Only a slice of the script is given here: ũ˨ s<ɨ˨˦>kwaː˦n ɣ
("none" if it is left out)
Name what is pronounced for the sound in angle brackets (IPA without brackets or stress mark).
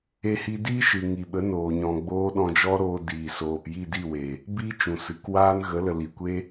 ɨ˨˦